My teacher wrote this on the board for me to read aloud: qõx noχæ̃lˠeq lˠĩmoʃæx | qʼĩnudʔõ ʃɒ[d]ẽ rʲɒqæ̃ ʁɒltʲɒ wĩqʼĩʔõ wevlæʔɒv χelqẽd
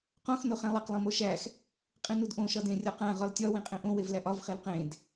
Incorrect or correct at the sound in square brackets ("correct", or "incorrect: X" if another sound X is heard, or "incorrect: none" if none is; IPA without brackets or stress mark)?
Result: correct